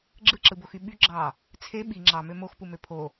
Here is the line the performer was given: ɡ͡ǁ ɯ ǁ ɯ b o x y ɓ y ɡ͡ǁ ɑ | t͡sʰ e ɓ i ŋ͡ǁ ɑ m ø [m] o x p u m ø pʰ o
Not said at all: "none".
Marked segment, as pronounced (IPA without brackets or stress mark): m